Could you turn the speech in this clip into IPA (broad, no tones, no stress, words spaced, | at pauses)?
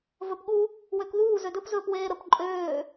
vɵpɠu | wøkðuː zødɵp zɵːpweːɾəp ǃʼøː